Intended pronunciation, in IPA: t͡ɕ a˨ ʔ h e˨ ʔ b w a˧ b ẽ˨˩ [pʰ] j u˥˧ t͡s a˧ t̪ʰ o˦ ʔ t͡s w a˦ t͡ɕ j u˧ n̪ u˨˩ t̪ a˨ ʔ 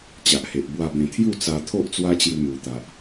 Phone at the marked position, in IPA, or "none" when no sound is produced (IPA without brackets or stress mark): t̪ʰ